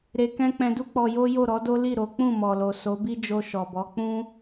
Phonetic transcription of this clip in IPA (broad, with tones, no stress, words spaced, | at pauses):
ɾe˧kɛ̃˦ k͡pɛ̃˧du˦ k͡pɔ˧jo˦ jo˦˨ɾɔ˨˦do˦ li˦˨ ɾo˨˦ k͡pũ˦˨mɔ˨lo˨ so˨˦bi˦d͡ʒo˧ ʃɔ˨bɔ˨˦ k͡pũ˦